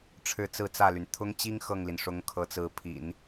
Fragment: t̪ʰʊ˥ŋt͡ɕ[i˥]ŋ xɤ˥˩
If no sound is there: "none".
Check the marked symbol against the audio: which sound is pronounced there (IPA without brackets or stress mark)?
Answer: i˥